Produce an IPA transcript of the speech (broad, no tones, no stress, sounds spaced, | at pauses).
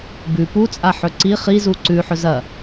b ʉ p u t͡sʼ a ħ ɵ ǀ i χ i z u ǀ ʉ ħ ɵ z ɐ